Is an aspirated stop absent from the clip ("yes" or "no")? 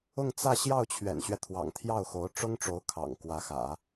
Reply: no